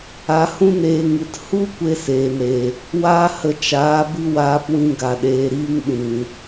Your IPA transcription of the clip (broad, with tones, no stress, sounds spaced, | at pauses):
a˨˦ h ũ˦ n eː˧ ŋ ɨ˨ t h u˦ kʷ e˦ s eː˨ n ɾ e˨ | w aː˦ h ə˧ t͡ʃ aː˨˦ b ɨ˦ w aː˧ p w ĩ˧ ɡ a˨ ɗ eː˨ ɾ iː˦ ŋ ɗ ĩ˨